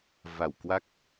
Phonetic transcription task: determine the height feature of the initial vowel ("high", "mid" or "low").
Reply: low